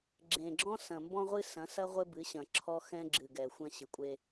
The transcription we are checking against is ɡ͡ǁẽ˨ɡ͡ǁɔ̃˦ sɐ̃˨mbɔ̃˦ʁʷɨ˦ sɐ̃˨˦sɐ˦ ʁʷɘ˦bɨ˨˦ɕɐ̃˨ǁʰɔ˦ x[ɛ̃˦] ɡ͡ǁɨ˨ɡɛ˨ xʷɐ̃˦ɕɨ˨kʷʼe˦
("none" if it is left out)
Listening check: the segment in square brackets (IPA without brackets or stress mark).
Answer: ɛ̃˦